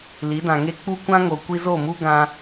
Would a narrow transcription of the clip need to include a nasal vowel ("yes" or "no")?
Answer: yes